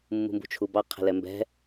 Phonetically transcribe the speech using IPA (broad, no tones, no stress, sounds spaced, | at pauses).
mː ṳ m b ṳ t͡ʃʰ u b ɑ qʰ ɛ̤ l ɛ m b ɛ̤